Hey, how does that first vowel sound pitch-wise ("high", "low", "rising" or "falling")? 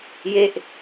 falling